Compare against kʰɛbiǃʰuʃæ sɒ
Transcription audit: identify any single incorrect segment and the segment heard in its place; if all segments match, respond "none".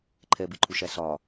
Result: kʰ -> ǃʰ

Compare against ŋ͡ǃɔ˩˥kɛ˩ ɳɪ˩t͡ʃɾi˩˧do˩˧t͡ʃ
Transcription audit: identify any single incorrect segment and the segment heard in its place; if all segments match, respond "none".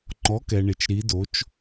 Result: none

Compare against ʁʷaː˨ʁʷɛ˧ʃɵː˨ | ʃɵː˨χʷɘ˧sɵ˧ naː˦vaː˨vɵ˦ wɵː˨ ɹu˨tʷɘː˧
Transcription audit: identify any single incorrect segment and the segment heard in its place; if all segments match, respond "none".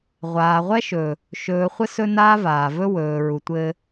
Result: ɛ˧ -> ɛ˦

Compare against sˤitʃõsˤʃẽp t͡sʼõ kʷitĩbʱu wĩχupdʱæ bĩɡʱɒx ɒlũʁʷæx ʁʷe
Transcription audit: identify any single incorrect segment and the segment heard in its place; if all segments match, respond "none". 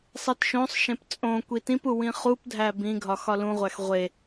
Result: bʱ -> p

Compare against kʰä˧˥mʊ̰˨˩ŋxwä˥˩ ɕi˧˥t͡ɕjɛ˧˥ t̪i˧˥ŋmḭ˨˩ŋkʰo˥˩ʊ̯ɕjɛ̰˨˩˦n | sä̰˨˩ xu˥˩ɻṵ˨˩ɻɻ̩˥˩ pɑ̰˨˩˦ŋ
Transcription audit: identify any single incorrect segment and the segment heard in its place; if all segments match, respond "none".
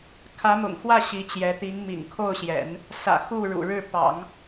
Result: none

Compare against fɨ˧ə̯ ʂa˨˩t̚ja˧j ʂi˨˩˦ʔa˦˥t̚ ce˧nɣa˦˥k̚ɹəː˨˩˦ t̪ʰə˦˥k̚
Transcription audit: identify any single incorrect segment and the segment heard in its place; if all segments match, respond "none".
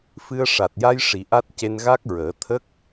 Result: none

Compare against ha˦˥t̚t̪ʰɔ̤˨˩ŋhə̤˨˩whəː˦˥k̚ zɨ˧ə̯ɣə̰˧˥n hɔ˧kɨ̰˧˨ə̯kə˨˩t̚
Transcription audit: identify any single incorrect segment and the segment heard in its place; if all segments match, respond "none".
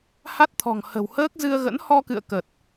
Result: none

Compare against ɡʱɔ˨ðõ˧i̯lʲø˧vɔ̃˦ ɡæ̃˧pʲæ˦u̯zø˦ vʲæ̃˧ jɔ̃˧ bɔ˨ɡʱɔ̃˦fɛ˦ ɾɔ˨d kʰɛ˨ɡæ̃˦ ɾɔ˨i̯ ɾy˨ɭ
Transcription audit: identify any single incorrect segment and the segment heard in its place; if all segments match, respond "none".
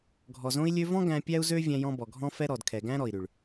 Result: ð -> z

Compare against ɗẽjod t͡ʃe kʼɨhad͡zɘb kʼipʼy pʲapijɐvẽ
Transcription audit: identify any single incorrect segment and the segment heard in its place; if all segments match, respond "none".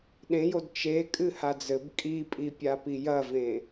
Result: y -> i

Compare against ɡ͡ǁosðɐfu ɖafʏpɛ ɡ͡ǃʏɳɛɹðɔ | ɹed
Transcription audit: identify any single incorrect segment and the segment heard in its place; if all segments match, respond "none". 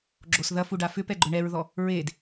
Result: none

